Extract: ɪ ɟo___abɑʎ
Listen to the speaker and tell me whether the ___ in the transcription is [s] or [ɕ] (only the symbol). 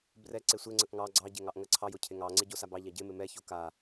s